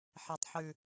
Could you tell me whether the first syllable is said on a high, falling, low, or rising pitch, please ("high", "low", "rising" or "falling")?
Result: low